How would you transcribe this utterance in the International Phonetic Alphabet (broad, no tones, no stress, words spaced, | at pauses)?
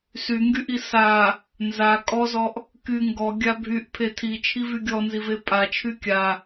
syŋɡyʔi sa | nza kʼɔzɔʔ | ky ŋɡɔɡʲa bʱyʔpʰe tʰit͡ʃʰivy ɡʲɔnzive pʼat͡ʃʰy kʲa